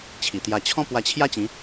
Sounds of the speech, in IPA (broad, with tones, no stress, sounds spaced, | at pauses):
t͡ɕʰ i˨˩ t̪ j a˧ t͡ɕʰ ɔ̃˦ p w a˧ t͡ɕʰ j a˦ t͡ɕ ĩ˨˦